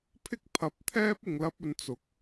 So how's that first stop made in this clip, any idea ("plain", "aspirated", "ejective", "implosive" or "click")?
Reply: aspirated